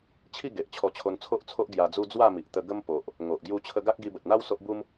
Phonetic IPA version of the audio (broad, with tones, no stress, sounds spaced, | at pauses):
t͡ɕʰ i˥˧ ɡ e˨ ʔ t͡ɕʰ ɔ˧ t͡ɕʰ o˧ n t͡sʰ o˦ ʔ t͡sʰ o˦ ʔ ɡ j a˧ d͡z u˦ d͡z w a˥˧ m i˨ ʔ t̪ ə˧ ɡ ə˦ m p o˨ ʔ | ŋ o˨ ʔ ɡ j u˧ t͡ɕʰ ə˧ ɡ a˦ k̚ ɡ i˧ b ə˨ t̚ n̪ a˦ w s o˦ ʔ b u˦ m